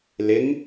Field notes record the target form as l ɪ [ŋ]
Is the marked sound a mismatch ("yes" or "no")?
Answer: no